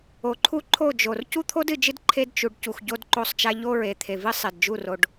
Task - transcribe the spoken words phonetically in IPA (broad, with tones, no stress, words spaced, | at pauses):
o˨ǃʰu˦ǃʰo˦˨d͡ʒo˨r cu˦t̪ʰo˦dɨ˨d͡ʒɨ˦d ǃʰe˦dt͡ʃu˨ɖ cu˨xɟo˦dǃo˦˨sˤt͡ʃa˦ ʎo˦ɹe˨t̪ʰe˨vɨ˦ sˤe˨dd͡ʒu˦˨ro˨ɖ